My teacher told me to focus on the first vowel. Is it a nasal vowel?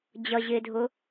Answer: no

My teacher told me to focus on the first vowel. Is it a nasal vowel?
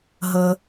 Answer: no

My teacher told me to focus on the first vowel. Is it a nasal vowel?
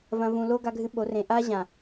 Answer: yes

